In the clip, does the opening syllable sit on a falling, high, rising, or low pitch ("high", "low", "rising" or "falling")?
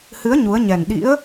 rising